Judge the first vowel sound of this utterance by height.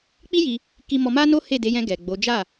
high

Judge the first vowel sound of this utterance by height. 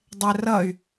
mid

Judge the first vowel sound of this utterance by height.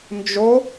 mid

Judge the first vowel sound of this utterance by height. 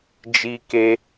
high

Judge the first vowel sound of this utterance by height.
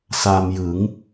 low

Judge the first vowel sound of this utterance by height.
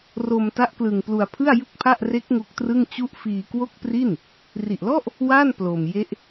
mid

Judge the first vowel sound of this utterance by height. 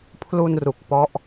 high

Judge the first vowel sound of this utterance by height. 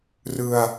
high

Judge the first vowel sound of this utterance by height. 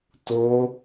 mid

